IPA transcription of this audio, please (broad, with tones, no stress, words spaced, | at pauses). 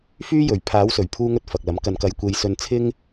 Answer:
fyː˥jɵ˨ɥ pʰaː˨˥wsɵ˨˩ɥpʰuː˧ŋɵ˧t̚ fɐ˨k̚lɐ˨˥m kɐ˨nkɐ˨j kʷe˧jsɵ˧nt͡sʰɪ˥ŋ